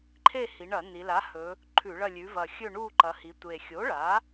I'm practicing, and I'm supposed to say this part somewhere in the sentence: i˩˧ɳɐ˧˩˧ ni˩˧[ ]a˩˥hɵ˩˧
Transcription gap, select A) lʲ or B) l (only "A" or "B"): B